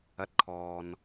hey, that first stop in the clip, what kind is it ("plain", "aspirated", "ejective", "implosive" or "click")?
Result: plain